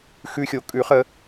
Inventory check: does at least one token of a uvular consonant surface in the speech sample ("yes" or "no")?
yes